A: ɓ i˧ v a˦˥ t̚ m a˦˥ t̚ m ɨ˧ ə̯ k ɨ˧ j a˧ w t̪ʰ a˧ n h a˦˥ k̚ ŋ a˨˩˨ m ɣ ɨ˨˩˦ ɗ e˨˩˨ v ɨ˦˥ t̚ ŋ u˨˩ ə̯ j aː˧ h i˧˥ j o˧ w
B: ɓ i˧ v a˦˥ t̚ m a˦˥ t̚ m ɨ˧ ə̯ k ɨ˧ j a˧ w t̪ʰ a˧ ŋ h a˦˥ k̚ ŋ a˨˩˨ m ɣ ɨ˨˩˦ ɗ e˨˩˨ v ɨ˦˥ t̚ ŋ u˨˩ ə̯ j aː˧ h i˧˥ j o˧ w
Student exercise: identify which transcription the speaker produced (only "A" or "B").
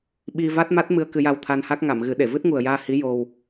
A